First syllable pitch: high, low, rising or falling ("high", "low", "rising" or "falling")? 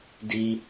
low